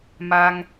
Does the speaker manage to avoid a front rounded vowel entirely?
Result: yes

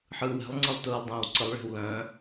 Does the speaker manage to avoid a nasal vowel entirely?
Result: no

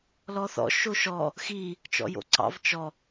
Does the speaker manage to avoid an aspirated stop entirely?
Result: yes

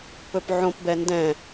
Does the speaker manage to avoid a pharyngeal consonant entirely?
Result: no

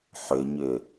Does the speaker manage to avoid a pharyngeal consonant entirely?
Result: no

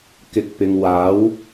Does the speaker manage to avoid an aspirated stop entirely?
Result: yes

